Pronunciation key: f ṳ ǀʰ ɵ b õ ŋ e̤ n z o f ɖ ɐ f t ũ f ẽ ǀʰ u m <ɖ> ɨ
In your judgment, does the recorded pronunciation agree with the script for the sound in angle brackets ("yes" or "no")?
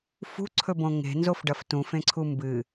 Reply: no